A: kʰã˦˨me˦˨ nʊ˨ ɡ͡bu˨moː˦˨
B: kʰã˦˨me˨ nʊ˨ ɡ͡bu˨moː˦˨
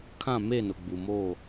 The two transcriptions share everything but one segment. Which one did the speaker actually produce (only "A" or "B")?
A